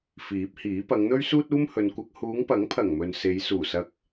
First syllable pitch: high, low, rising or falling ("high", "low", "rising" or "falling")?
rising